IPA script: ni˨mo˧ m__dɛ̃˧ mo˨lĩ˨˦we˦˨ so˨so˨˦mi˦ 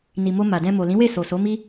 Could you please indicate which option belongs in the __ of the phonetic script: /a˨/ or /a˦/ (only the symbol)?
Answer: a˨